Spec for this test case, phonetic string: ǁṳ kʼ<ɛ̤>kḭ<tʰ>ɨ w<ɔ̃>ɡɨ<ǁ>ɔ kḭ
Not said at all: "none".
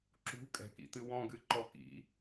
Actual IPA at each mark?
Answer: ɛ̤, t, ɔ̃, ǃ

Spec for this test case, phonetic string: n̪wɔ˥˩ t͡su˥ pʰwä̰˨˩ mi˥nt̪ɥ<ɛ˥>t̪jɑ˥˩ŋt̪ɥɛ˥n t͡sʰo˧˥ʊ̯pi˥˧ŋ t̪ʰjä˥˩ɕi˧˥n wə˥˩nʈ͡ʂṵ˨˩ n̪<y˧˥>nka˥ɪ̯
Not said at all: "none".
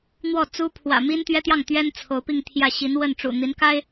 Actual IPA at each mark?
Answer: ɛ˥, i˧˥

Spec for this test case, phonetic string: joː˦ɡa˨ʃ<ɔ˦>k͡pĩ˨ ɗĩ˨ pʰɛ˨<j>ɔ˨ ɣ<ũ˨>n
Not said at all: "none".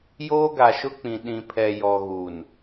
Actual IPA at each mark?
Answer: ʊ˦, j, u˨

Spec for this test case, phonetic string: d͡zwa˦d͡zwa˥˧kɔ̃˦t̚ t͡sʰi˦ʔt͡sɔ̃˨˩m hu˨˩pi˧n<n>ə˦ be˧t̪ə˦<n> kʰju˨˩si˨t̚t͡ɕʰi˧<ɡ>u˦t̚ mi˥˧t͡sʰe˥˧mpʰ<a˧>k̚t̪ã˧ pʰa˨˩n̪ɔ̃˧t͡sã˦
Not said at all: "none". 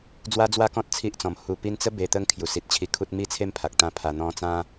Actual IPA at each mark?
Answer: t͡s, ŋ, kʰ, a˨

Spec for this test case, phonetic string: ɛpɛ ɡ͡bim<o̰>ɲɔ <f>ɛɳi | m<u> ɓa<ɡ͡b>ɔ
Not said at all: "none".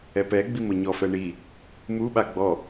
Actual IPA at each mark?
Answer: o, f, u, ɡ͡b

